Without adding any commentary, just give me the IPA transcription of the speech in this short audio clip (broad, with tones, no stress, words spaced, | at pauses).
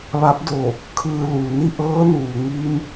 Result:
ʋa˧˥p̚do˧˩ | kʰɯː˧lu˩ ni˥˨ʔɤː˧˥nuː˩ŋiː˧m